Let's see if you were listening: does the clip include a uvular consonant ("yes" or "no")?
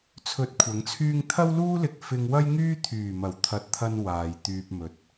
no